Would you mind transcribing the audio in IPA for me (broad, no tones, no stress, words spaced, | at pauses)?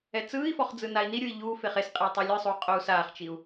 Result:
ɛt͡sɯːi̯fɔχ d͡zɯnai̯niɾʲui̯ ʎuː feχesqʼiu̯ tˤɯlʲɯsˤuː qʼou̯saːχt͡ʃiu̯